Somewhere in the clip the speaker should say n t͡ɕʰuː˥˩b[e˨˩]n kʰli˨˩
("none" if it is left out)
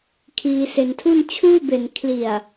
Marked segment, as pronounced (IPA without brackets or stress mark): e˨˩